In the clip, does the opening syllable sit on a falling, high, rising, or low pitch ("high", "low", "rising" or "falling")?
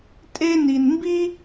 high